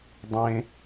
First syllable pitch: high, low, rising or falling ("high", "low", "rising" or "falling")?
low